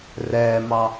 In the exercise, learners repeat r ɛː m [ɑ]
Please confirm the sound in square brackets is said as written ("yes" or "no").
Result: yes